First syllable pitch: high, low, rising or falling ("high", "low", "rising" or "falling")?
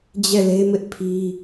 falling